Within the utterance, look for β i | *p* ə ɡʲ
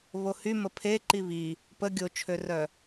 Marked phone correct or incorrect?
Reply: correct